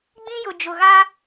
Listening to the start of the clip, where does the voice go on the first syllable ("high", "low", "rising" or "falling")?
high